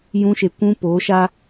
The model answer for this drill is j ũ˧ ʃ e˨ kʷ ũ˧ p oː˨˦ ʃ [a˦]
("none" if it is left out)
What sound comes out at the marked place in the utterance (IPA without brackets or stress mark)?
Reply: a˦